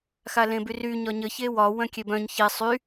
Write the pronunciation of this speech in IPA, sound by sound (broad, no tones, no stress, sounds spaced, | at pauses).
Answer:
x a l ẽ b y r y ɲ ɒ ɲ ə ç e w ɒ w œ̃ kʲ e b œ̃ ɲ ç e sˤ y